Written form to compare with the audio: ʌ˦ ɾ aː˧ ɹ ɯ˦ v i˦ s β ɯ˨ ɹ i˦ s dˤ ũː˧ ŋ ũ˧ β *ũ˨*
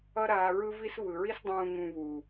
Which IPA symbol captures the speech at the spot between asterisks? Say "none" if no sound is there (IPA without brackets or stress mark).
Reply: u˨